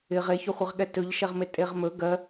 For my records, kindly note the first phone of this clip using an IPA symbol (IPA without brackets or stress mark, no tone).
ɪ